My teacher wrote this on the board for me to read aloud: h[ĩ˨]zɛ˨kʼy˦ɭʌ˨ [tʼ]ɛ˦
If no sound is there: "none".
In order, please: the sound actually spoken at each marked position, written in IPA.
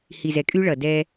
i˨, d

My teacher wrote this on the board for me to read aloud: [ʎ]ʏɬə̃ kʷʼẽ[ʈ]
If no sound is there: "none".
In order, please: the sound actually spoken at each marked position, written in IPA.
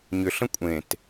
ɲ, t

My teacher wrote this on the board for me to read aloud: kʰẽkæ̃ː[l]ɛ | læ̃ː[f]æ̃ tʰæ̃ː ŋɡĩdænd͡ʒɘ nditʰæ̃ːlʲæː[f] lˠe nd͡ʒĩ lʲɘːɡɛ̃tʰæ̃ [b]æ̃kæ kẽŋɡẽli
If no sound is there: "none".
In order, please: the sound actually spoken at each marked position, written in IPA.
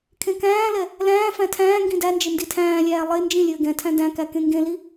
l, f, none, d

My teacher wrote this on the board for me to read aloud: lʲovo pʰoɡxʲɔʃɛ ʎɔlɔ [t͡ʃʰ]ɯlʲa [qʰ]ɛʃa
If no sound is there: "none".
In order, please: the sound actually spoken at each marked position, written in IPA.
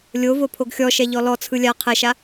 t͡sʰ, qʰ

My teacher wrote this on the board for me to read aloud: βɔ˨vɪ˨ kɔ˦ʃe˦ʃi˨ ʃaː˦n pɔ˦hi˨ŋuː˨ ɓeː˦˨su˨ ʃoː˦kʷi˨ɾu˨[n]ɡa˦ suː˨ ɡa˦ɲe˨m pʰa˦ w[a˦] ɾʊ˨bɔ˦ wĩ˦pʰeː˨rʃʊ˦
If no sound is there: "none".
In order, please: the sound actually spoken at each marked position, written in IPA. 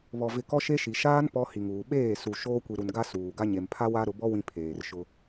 n, a˦

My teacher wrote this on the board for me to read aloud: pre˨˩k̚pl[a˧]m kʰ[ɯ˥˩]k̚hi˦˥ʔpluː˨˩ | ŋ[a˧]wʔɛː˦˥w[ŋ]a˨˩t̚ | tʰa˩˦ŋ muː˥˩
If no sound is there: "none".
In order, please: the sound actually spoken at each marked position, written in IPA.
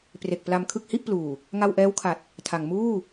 a˧, ɯ˥˩, a˧, kʰ

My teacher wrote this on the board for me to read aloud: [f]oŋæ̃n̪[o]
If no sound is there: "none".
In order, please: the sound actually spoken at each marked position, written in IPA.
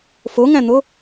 f, o

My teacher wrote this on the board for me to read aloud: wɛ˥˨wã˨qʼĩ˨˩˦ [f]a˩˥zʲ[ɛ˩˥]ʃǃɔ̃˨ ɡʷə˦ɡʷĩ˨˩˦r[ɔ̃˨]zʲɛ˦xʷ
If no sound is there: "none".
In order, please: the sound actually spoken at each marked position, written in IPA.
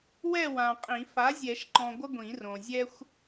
f, ɛ˨˩˦, õ˨

